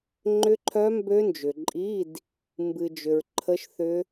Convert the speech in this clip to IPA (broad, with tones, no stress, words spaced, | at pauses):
ŋ͡ǃʏ˦˥ǃʰœ˦˥mbø˦˥nd͡ʒʏ˨ ǃʼi˧˥˧d | mbɨ˨d͡ʒʏ˨ɹ ǃʰə˦˥ʃθʏ˦˥